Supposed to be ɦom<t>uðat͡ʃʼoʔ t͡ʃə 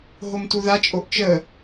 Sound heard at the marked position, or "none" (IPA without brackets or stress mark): t